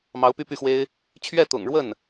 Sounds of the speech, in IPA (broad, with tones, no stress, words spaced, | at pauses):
mɑ˧˥ʊ̯py˥˧py˥˩xwe˥ɪ̯ | t͡ɕʰɥɛ˥˩t̪ʊ̰˨˩ŋɻwə˥˩n